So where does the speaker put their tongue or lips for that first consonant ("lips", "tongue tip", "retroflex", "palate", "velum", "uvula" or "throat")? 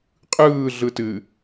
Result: uvula